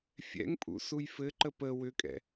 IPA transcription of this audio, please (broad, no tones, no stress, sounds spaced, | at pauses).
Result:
fʲ ɛ̰ ŋ pʼ ṵ s u j f ɘ ǃ ə p ə w ʏ kʼ ɛ̰